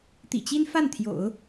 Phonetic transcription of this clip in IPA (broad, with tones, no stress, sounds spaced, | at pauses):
t̪ ḭ˨˩ t͡ɕ i˥ n f a˥˩ n t̪ʰ j o̰˨˩˦ ʊ̯